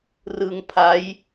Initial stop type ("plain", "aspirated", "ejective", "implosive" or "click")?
aspirated